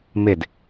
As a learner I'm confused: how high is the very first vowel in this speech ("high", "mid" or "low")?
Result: high